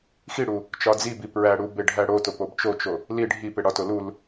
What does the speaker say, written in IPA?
xiɽu | t͡ʃɒd͡zibi pɹæɽu beɖʱæɽotop obt͡ʃot͡ʃo | li ɖʱi peɽɒto lul

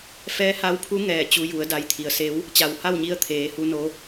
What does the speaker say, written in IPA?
fɛː˧˥ha˧˥wpʰu˧˥ ŋɛː˧˩t͡ɕu˧ju˩˧ə̯da˧j t̪ʰi˩ə̯se˧˥w | t͡ɕa˩wha˥˨wɲi˧ə̯ t̪ʰeː˩˧hu˧no˧

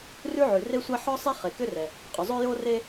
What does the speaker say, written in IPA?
rʉ˥ʕʉ˩re˥sʷa˥ ħɔ˥ sˤe˥ χe˩kʏ˥rɛ˩ | qʼʏ˩zˤo˥ jo˥re˥

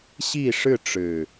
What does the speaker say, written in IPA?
ɕi˥˨ʂɻ̩˥˨ʈ͡ʂɻ̩˨˩

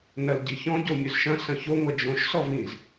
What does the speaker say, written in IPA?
nɐlɟiçɔ̃ ɟomʲɵzʃɐ̃ sɐ̃ço ŋʷɐd͡ʒõʃ sɔvĩz

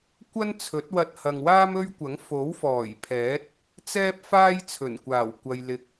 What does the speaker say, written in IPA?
kʷɐ˥nt͡sʰɵ˨˥t̚wɐ˧t̚ hɐ˨ŋwaː˥mɵ˥ɥkʷɐ˨˥ŋ fo˨˥wfɔː˨˩j pʰɛː˨˥t̚ | t͡sɛː˥p̚faː˥j t͡sʰɵ˨˩nkʷaː˨˩w kʷɐ˧j lɪ˧k̚

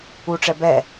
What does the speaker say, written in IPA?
uʈ͡ʂɛ bɛ

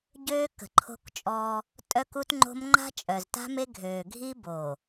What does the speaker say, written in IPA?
ɟøː˦kə̤˨ǃʰo̤˦kt͡ʃʼɔː˦ | tʼœ˦ku˦tŋ͡ǃo̤˦m ŋ͡ǃa̤˦t͡ʃʼœ˨zta̤˦me˦ ɡʱøː˨ɡʱi˦ boː˨

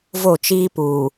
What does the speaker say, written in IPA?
vo˦˨t͡ʃiː˦puː˨

